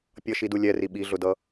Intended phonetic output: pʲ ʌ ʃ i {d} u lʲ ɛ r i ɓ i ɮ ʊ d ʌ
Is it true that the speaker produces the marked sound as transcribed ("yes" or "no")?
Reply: yes